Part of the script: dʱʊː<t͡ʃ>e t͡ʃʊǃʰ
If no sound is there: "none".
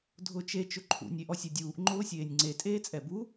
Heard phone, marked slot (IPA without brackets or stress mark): t͡ʃ